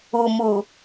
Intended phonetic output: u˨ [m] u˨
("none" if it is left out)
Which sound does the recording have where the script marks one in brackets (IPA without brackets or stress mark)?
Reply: m